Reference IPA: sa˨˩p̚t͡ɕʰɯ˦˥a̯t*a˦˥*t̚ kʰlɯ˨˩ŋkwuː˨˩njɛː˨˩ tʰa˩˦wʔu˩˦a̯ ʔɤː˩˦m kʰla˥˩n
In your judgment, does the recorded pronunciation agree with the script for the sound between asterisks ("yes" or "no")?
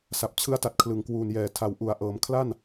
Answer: no